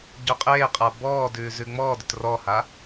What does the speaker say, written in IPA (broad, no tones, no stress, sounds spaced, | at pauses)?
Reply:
ɟ œ qʼ eː qʼ a b ɔː d ʉː z ʉ ŋ͡m ɔː d ʏ t r ɔ h a